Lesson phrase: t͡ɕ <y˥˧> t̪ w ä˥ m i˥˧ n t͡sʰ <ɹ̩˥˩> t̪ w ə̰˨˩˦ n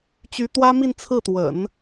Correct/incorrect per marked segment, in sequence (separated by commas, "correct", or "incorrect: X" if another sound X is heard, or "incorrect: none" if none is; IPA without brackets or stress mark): incorrect: y˧˥, correct